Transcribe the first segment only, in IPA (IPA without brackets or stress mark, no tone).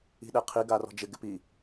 i̤